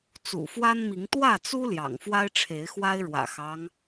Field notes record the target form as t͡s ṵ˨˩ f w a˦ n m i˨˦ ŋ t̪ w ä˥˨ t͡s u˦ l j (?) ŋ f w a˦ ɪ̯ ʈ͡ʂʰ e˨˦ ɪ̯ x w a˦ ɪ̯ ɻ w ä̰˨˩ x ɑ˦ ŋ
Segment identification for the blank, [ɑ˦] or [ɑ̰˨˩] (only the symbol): ɑ̰˨˩